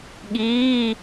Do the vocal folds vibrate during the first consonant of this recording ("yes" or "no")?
yes